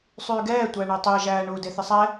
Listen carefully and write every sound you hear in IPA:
sˤ yː ɡ ɛː tʷ æ ɳ e tˤ ɛ ʒ æː ɳ u d e θ ɪ sˤ ɛ

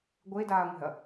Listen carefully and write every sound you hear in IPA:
ɡʷ e d aː ŋʷ ɛ̤ ɐ̯

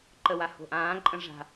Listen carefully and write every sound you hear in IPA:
ǃ ə w a h o̤ ʔ ãː ǃʼ ə̃ ʐ a̤

